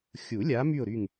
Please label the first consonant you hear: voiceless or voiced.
voiceless